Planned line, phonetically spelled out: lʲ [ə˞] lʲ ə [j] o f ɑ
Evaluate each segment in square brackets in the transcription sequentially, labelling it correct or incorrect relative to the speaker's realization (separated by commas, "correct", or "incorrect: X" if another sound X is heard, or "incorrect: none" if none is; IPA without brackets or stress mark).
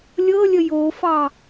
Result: incorrect: ɤ, correct